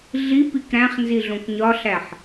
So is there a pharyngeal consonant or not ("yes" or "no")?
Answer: yes